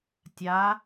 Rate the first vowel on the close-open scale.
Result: open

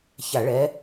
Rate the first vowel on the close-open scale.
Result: open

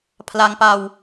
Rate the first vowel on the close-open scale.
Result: open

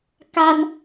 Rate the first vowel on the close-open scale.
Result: open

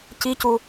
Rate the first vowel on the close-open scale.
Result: close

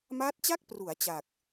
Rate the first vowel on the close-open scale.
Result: open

